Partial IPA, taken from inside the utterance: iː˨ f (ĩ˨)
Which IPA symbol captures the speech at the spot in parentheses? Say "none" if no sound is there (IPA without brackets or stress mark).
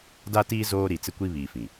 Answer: ĩ˨